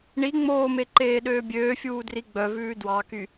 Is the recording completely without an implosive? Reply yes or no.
no